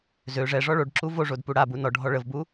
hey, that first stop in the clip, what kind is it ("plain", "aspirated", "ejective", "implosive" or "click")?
plain